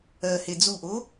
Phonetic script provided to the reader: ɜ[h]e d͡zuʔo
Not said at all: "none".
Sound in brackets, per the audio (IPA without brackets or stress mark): h